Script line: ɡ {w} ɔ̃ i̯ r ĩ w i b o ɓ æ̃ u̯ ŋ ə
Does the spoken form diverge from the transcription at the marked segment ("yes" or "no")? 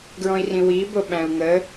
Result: yes